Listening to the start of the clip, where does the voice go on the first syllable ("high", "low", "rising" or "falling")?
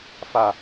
low